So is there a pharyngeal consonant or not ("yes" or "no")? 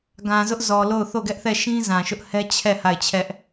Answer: no